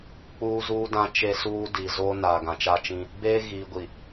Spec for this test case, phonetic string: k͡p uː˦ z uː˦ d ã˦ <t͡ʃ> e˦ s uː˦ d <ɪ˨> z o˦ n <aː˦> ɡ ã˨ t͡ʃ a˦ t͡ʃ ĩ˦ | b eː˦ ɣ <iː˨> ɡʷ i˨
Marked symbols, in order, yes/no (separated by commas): yes, no, no, yes